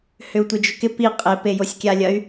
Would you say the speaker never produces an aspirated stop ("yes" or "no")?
yes